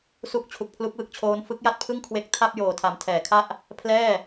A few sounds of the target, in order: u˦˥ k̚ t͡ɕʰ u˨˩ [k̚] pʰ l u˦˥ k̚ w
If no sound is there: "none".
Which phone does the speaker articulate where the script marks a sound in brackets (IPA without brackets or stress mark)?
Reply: k̚